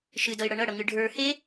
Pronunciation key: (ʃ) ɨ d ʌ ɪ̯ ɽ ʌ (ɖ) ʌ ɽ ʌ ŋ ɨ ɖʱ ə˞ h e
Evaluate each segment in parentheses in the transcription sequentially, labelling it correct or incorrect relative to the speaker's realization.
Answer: correct, incorrect

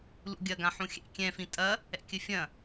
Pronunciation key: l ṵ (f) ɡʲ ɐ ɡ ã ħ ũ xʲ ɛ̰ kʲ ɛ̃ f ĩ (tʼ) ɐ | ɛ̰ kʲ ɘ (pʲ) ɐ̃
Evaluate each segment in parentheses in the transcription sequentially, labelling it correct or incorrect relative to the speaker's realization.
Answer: incorrect, correct, incorrect

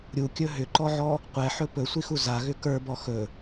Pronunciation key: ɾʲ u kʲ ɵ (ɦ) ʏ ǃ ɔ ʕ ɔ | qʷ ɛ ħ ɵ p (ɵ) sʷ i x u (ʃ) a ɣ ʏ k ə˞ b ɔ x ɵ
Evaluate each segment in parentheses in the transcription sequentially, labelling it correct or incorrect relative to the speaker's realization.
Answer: correct, correct, incorrect

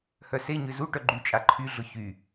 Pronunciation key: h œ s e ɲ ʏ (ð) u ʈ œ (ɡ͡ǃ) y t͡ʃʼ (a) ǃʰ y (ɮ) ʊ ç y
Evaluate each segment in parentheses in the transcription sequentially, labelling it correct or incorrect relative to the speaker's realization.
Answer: incorrect, correct, correct, correct

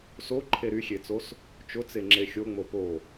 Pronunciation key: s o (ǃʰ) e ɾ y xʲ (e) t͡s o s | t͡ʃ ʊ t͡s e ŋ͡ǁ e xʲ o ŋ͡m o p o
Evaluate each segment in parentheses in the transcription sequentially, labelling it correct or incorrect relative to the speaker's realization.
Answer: correct, correct

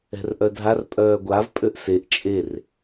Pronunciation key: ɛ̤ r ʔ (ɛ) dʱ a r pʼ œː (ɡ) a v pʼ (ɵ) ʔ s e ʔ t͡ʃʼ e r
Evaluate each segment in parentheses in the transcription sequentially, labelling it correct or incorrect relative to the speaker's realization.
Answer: incorrect, incorrect, incorrect

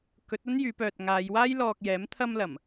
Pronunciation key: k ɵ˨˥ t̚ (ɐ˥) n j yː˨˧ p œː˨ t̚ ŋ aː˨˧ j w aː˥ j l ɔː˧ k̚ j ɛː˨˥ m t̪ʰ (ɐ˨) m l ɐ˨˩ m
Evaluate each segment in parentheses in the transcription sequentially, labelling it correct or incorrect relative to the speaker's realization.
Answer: correct, incorrect

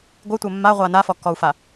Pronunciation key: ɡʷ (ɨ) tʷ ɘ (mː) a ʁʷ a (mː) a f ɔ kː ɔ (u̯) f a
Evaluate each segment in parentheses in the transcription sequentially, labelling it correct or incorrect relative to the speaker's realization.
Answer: correct, correct, incorrect, correct

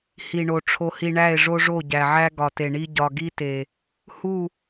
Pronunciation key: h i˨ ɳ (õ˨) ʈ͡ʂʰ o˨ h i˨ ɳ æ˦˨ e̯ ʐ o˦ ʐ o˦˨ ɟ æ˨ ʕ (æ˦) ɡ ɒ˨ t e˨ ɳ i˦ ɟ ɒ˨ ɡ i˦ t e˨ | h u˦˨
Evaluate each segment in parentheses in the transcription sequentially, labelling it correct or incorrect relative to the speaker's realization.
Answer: incorrect, correct

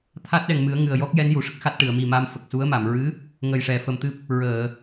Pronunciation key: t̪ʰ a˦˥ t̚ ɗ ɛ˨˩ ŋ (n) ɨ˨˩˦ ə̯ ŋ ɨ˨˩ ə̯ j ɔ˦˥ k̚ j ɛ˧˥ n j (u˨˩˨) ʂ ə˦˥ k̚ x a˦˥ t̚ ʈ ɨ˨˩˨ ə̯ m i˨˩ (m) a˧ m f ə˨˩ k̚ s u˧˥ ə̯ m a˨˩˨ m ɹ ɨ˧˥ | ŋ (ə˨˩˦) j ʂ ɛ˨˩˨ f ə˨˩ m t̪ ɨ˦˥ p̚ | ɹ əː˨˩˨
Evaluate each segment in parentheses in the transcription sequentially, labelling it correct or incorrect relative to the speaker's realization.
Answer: incorrect, correct, correct, incorrect

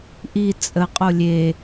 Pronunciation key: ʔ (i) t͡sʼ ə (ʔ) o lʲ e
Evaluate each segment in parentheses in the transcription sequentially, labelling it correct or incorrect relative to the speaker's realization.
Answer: correct, incorrect

